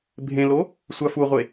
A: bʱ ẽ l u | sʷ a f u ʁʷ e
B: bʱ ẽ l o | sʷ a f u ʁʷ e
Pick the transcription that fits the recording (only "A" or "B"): B